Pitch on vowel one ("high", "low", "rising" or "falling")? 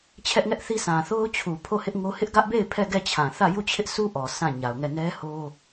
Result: high